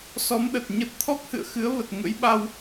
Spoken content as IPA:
s ɔ˨˦ m ɗ ə˨˩ t̚ ɲ ə˦˥ t̚ t̪ʰ ɔ˦˥ k̚ h ɨ̰˧˨ ə̯ x ɨ˨˦ ə̯ v ə˨˩ t̚ ŋ ə̰˧˥ j ɓ a˧ w

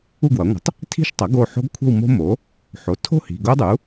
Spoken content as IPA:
u˥˧ ɡ w ʌ˩˥ ŋʷ ə̤˩˥ tˤ | tʰ i̤˥˧ ʃ tˤ ʌ˩˥ ɡ o˩˧˩ ħ o̤˦˥ ɡ kʷʰ ə̤˥˧ w m o̤˦˥ m o˩˥ | ħ o˩˥ tʰ o̤˥˧ h i̤˩˧˩ ɡ o˦˥ dˤ u˩˥

